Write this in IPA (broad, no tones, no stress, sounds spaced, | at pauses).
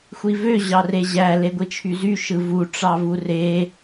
xʷ i v ø ʑ ɑ r e ʑ æ l e ɡʷ i t͡ʃʰ y z y ʃ ɯ v u ʈ͡ʂ ɑ v u r e